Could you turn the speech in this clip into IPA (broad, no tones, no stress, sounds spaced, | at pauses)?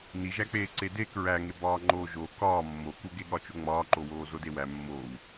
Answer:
n i ʒ æ k͡p eː ǀ e d e k ɹ æ ŋ e b ɒː ŋ͡ǃ oː ʒ o k ɒː mː o k u ɡ e ɠ ɒ t͡ʃ o ŋ͡m ɒː ǃ o w oː z o d e w æ mː oː w